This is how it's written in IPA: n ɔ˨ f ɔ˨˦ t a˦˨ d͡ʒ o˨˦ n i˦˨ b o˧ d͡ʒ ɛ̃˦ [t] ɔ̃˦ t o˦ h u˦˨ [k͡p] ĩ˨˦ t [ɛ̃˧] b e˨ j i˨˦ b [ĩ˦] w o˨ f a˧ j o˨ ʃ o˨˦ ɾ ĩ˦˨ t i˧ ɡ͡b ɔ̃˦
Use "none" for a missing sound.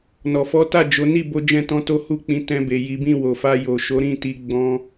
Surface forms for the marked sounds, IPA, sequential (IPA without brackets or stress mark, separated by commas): t, k͡p, ɛ̃˧, ĩ˦˨